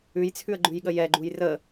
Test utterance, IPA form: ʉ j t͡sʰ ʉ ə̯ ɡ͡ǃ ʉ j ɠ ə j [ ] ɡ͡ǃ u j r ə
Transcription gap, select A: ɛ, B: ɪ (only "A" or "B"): A